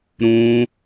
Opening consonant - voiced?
yes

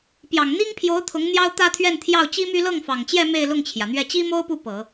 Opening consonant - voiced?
no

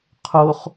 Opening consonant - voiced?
no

